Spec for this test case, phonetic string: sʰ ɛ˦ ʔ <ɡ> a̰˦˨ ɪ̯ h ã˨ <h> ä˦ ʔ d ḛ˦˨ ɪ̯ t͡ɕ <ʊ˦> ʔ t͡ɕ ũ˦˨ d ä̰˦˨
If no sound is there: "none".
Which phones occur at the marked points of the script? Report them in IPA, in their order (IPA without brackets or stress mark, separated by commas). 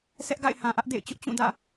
ɡ, ʔ, ʊ˦